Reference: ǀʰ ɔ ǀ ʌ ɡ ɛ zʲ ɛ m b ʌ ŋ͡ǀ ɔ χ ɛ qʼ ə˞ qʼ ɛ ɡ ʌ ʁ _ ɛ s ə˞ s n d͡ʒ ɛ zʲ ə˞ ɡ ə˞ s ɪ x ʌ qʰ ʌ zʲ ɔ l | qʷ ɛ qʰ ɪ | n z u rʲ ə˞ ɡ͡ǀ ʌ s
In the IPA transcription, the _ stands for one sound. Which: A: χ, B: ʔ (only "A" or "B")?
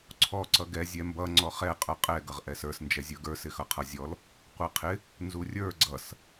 B